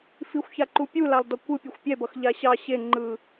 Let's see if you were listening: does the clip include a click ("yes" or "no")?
yes